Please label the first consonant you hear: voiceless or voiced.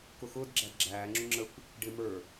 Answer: voiceless